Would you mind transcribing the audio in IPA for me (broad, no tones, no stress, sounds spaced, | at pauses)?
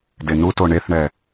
d e n u t o ɳ e θ ɳ ɛ